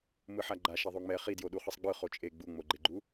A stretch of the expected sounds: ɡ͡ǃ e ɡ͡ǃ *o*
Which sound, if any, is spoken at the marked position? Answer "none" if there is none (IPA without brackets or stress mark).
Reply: u